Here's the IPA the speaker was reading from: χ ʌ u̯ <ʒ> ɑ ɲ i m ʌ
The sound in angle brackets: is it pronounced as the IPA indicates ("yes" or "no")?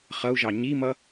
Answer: yes